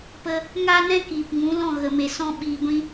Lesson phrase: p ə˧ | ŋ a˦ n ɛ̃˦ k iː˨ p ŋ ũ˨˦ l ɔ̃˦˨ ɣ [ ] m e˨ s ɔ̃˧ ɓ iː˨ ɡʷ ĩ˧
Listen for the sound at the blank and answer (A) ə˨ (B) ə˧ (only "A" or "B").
A